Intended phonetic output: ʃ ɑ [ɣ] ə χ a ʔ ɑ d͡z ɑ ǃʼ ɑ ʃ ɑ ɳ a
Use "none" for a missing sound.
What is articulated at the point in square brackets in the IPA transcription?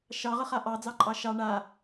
ʁ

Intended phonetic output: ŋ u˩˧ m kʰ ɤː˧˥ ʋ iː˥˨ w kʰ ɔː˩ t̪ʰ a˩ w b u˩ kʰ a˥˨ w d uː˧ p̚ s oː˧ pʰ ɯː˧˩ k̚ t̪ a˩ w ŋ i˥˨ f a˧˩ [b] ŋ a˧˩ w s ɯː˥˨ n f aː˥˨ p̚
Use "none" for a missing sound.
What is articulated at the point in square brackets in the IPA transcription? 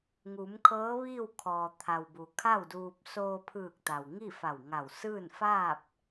w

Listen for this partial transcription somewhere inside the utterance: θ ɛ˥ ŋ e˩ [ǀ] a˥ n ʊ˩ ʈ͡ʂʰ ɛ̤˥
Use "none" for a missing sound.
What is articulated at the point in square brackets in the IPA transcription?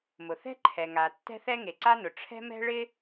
ǀ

